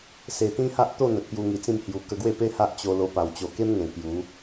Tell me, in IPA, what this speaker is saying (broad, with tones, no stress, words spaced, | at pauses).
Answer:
se˨˩t̪ĩ˦ha˦ʔt̪o˥˧ n̪ə˨t̚pju˧ŋi˨˩t͡sĩ˥˧m hju˨˩ kə˧ɡwe˥˧pe˦ ha˦ʔt͡ɕo˧lo˧pa˨˩w t͡ɕo˨˩ke˦mŋẽ˨˩ kju˨˦